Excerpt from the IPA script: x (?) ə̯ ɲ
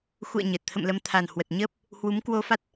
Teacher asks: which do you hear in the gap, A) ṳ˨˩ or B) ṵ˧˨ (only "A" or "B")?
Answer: B